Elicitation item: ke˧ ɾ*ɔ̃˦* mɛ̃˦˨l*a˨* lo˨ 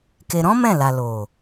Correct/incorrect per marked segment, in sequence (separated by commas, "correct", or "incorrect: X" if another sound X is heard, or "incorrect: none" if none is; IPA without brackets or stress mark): correct, correct